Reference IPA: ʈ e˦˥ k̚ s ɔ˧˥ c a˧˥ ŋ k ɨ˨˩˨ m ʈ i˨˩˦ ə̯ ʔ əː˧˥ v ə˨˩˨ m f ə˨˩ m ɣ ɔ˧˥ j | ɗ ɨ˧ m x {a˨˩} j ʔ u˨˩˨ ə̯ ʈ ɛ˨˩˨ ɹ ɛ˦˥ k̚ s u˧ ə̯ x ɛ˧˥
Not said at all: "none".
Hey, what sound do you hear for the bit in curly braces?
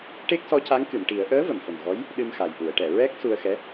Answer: a˨˩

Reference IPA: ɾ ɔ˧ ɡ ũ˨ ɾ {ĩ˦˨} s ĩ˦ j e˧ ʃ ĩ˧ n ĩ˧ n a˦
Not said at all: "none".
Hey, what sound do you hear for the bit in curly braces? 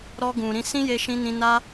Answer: ĩ˧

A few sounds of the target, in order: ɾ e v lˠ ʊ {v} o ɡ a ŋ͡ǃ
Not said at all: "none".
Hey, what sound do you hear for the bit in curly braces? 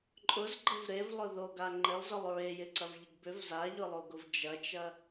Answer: ð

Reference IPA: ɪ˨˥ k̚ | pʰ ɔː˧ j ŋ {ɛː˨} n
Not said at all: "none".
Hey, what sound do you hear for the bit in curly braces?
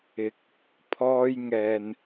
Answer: ɛː˨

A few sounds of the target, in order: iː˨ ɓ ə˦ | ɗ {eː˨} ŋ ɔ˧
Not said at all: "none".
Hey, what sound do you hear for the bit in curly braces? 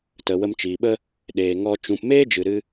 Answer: eː˨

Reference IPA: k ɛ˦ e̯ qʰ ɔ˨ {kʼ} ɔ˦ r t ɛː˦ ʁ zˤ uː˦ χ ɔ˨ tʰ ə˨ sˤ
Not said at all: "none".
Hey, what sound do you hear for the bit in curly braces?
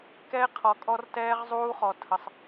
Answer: kʼ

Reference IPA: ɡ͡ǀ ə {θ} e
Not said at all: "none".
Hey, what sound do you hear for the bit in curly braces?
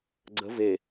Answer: v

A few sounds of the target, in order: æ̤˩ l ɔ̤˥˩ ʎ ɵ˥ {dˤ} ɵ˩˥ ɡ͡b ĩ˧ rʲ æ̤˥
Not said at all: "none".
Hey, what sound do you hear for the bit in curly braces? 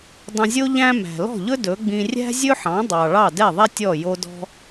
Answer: d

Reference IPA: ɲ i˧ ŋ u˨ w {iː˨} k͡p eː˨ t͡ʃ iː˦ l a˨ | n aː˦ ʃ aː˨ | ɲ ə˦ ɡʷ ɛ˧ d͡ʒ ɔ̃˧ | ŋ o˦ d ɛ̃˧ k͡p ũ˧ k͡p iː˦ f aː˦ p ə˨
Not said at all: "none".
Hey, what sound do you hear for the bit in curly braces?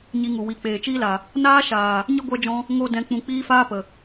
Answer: i˨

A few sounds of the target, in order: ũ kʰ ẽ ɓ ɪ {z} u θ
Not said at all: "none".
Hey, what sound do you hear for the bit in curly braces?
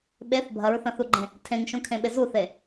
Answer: z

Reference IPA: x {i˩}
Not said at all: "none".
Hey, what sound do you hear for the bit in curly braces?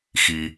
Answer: i˩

